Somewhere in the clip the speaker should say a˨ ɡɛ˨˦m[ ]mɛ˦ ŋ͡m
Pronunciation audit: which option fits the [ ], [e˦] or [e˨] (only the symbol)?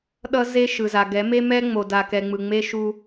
e˦